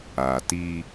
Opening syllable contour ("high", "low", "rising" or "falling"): low